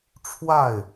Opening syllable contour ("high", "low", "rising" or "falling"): falling